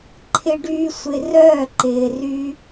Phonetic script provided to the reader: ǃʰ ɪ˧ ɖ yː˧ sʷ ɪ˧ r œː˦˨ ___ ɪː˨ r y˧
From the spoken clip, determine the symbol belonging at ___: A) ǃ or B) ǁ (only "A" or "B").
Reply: A